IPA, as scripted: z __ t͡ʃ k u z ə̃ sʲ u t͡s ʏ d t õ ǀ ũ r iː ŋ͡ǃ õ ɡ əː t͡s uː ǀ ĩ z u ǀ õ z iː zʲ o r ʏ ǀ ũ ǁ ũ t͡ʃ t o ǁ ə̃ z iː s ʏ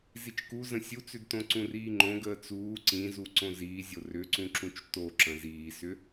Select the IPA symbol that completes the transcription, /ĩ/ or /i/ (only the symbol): i